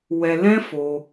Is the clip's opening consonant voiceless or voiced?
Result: voiced